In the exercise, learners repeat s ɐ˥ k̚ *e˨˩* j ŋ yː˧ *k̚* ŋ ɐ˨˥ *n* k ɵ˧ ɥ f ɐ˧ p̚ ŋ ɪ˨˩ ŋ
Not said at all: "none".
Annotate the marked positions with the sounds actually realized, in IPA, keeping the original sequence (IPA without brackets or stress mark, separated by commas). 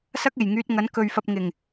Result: e˨˩, t̚, n